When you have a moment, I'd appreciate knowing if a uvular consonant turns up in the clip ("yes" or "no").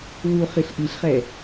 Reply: yes